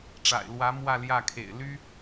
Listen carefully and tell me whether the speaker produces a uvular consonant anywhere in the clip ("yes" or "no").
no